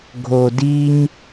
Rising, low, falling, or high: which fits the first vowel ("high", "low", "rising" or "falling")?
low